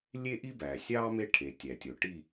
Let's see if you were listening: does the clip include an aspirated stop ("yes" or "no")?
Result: yes